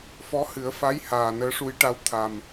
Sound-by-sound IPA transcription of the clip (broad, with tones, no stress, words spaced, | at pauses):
fɔ˧˥hɨ˨˩˦ə̯fa˧˥j haː˨˩nəː˧˥ʂu˧˥jʈa˧˥w t̪ʰa˨˩m